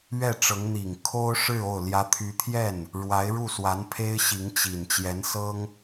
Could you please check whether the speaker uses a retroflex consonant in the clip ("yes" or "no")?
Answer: yes